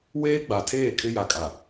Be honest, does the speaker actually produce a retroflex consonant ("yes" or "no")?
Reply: no